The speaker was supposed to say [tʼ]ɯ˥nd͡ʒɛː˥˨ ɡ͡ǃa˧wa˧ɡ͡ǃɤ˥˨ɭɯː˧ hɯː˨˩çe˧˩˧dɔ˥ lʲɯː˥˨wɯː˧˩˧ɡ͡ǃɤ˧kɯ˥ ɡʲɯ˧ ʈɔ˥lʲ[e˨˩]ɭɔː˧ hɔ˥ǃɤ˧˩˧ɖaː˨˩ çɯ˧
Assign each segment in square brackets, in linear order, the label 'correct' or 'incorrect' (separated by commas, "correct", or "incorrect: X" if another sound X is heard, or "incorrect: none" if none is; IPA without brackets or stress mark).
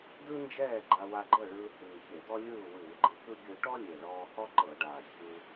incorrect: d, correct